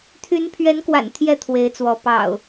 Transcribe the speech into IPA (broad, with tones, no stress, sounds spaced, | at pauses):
t̪ʰ y˨˦ n pʰ ɥ ɛ˨˦ n k w a̰˨˩ n t̪ʰ j ɛ˥˨ t̪ʰ w e˨˦ ɪ̯ t͡s w ɔ˨˦ p ɑ̰˨˩ ʊ̯